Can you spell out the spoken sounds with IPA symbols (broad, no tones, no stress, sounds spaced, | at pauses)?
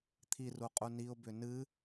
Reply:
t̪ʰ i r u qʼ u n i ʊ̯ b ʏ n ɨ